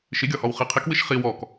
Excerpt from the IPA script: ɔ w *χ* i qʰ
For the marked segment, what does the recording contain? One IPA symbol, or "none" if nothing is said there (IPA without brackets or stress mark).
χ